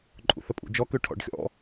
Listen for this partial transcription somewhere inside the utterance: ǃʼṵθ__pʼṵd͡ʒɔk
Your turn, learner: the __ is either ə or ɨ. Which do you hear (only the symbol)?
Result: ə